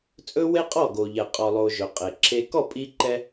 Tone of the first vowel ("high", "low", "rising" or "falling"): high